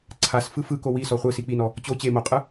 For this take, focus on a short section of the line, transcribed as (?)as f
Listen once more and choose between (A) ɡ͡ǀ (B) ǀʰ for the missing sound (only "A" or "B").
B